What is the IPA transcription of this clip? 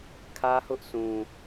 kʰ ä˦ h ʊ˦ ʔ s ũ˨

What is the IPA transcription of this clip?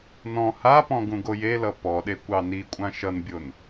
n ɔ̃ h a p ɔ̃ ɡ ũ ɡ o j e l ʌ p ɔ ɗ e kʷ ɑ n i kʷʼ ã ʃ ʌ n bʲ o n

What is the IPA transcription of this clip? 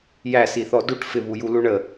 j æ s i θ ɔ d u ʈ f ɪ β u j u l u ɳ ə

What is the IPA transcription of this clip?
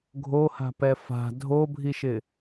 ɡʱ o h a̤ p ɛ f a̤ dʱ o bʱ i ʃ ɪ

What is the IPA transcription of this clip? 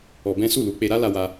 ɔ˧ b ɛ̃˦ s u˦˨ l u˧ k͡p e˧ ɾ a˦ l a˦ w a˦

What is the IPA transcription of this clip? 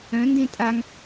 œ̃ n d ẽ tʼ a ŋ

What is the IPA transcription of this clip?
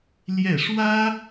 l j ɛ˥˩ ʂ w ä˥

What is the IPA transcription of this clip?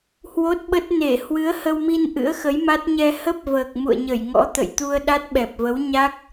h w o˦˥ t̚ ɓ ə˦˥ t̚ n e˧˩ h w ɨ˨˦ ə̯ h ə˧ w m i˧ n ʔ ɨ̰˧˥ ə̯ x ə˨˦ j m a˦˥ t̚ ɲ ɛ˧ h ə˦˥ p̚ v əː˨˩ k̚ m ṵ˧˨ ə̯ ɲ ə˧˩ j ŋ ɔ̰˧˥ t̪ ə̰˧˨ j t̪ u˧ ə̯ ɗ a˦˥ t̚ ɓ ɛ˨˩ p̚ v ə˨˦ w ɲ a˦˥ k̚

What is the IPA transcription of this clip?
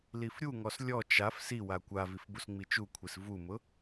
l i f ɾʲ u ŋ ɔ s lʲ ɔ t͡ʃ a f s i w a kʷ a v i f b u s ŋ͡m i t͡ʃ u kʷʰ i s v u m ʊ

